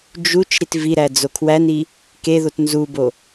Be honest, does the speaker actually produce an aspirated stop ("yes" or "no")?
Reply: yes